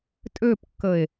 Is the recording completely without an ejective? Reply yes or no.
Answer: no